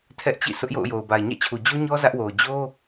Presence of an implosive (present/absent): absent